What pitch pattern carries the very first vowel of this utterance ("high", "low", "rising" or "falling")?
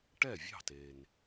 falling